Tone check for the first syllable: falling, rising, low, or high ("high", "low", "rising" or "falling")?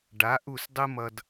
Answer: rising